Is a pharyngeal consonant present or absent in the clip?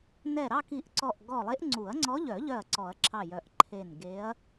absent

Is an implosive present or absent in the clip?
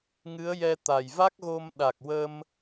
present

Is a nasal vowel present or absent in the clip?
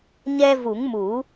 absent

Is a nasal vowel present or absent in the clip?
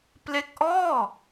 absent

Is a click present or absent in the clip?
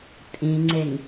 present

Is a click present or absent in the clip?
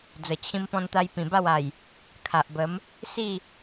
absent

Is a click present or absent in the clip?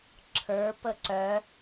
present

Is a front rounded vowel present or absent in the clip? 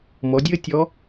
absent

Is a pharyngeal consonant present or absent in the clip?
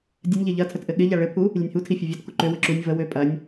absent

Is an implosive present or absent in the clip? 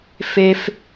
absent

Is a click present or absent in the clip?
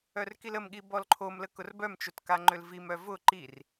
present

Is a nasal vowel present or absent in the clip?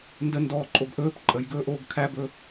absent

